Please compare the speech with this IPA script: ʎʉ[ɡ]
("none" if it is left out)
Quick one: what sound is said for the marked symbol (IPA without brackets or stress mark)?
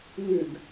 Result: ɡ